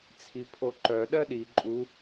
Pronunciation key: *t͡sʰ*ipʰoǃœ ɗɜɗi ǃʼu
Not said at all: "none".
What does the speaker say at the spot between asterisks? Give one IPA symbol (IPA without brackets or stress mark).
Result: t͡sʰ